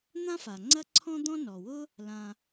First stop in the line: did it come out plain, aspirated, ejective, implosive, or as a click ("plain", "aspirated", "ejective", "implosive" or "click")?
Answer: click